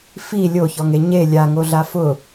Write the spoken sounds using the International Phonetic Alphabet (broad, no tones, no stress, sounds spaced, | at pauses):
f i lʲ o ç ɔ ŋ e ɲ e lʲ a ŋ o ɮ a f ʊ